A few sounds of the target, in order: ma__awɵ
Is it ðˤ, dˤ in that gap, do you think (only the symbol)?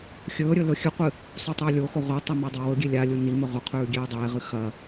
dˤ